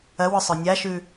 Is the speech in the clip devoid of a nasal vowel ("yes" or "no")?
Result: yes